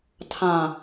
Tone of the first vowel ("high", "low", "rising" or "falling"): low